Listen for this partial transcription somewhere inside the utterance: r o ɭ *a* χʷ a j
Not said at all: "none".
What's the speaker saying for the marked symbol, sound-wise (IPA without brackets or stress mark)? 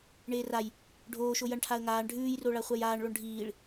a